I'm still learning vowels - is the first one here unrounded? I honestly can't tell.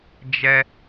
yes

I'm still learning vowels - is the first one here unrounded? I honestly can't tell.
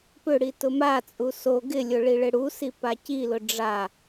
no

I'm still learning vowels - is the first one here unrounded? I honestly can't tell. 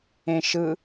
yes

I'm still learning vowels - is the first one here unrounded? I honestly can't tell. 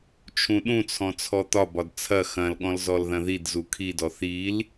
no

